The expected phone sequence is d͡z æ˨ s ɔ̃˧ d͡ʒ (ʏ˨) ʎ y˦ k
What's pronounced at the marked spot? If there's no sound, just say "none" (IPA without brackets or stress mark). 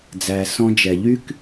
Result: ɛ˨